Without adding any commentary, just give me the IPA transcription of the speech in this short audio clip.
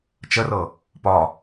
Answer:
t͡ʃ ə r ɤ | p ɒ

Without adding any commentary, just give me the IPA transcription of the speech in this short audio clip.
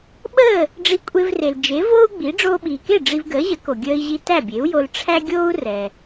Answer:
ɓ əː˥˩ | ɖ͡ʐ i˧ kʷʼ e˧ v r e˩ l d͡ʒ e˩˥ v oː˥ u̯ ɡ͡b i˩˥ ɖ͡ʐ oː˧ ɓ iː˩ k e˥˩ ɖ͡ʐ i˧ v ɡ əː˩˥ ʑ ə˩˥ k o˩ ɡʲ əː˧ i̯ ʑ i˧ t æ˥˩ bʲ e˩˥ u̯ j o˧ l ʈ͡ʂʰ æ˥ ɡʲ oː˥ u̯ r ɛ˩

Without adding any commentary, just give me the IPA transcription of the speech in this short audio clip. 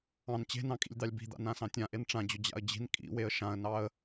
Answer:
ɑ̃ n t͡ɕ e̤ n ɑ̃ kʼ ḭ lʲ d̪ ɑ lʲ b i̤ d̪ a̰ n ã s ɑ̃ tʲ ã ʔ e n ʈ͡ʂ ã d͡ʑ ʊ d͡ʑ a̰ ə̯ d͡ʑ i̤ n kʼ ḭ w e ə̯ ʃ ã ə̯ n ɑ ə̯

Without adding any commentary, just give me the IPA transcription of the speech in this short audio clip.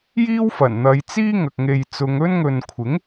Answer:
j iː˥ w f ɐ˨˩ n n̪ ɐ˨˧ j t͡s iː˥ ŋ ɐ˨ k̚ ŋ e˨ j t͡s ʊ˨˧ ŋ ɵ˥ n ŋ ɵ˨ n kʷʰ ɪ˨˥ ŋ

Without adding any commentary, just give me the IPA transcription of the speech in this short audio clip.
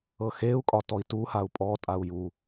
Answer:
ɤ x e u̯ kʼ ɒ t ɔ i̯ t u h a u̯ pʼ ɔ tʼ a u̯ j u

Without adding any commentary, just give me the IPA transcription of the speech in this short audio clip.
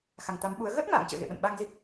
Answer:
x a˨˩ ŋ t̪ a˨˦ m ɓ u˨˦ ə̯ ɣ əː˦˥ t̚ m a̰ː˧˨ ŋ t͡ɕ ə̰ː˧˨ ɣ ḛ˧˨ ɓ ə̰˧˨ n ɓ a˧ ŋ z i˦˥ k̚

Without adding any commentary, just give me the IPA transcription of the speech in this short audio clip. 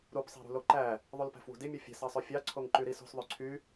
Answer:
ɾ u p sˤ e̤ ɾ ṳ l o ǃ æ | ðˤ u l p æ̤ f w ṳ d i mʲ u fʲ e̤ s ɑ sˤ ø fʲ ɑ ǀʰ o ŋ ǃ y ɾ i s o̤ s ðˤ ø ǀʰ y

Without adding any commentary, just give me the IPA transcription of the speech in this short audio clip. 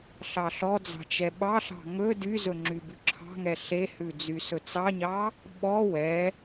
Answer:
ɬ ɑ ɬ ɔ d͡z ɑ̤ t͡ʃ ɛ ɓ ɑ ɬ ɑ̤ ŋ ɵ d y z ɵ ŋ͡ǁ y b ʉ ǁʰ ɑ̤ ŋ ɛ ɬ e h ʉ d͡z y s ɵ t͡s ɑ ɲ ɑ | ɓ ɔ w ɛ

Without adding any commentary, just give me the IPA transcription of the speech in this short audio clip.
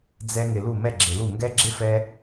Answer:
d͡z ɛ˧ ŋ ɪ˨ l u˦˨ m ɛ˦˨ ɡ͡ǁ ɪ˨ l u˦˨ ŋ ɡ ɛ˦ ɡ͡ǁ ɪ˦ f ɛ˧

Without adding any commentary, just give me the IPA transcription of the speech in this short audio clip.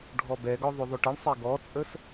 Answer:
ɖʱ ɔ b ɛ ɡ ɔ ðˤ ʏ ðˤ ʏ ʈ ə ɳ sˤ ɛ ɡ ɔ t͡sʼ ə s

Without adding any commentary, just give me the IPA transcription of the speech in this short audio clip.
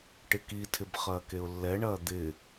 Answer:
ʈ ɪ k i tʰ ɪ b χ ɐː k e ʊ̯ lː ɛ ɳ ɐː d̪ ɪ

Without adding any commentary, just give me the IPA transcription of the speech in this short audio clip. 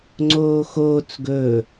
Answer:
ŋ͡ǀ oː x oː t͡s ɡ ɵː

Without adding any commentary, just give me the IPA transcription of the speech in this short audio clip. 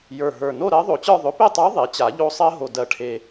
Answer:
j ə˞˨˩ ɦ ə˞˨˩ n o˥˧ ɾ ɜ˧˥ ðˤ o˨˩ t͡ɕ ə˞˥˧ ðˤ ɵ˩˥ p e˥˧ tˤ ə˞˧˥ ðˤ e˩˥ t͡ɕ a˨˩˦ ʎ o˥˧ sˤ ɜ˥ ɦ o˨˩ d ɜ˨˩ ʈʰ e˨˩

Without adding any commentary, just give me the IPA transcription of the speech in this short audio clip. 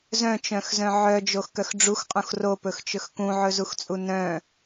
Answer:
z œ̃ t͡ʃ œ̃ x z œ̃ ʕ œ d͡ʒ o x k œ x ɖ͡ʐ u x qʼ ũ x r o p ɵ x t͡ʃ ɵ x k ũ ʕ ɵ z u x t͡sʼ u n œ̃

